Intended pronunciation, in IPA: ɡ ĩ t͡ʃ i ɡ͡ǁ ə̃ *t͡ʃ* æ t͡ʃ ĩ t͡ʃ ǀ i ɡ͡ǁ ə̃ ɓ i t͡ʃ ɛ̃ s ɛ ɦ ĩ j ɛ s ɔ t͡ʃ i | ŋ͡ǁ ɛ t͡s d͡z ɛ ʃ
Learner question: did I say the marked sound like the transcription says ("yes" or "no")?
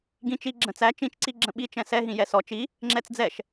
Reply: no